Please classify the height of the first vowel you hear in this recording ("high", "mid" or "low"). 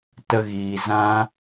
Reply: mid